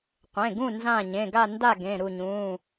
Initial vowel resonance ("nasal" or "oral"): nasal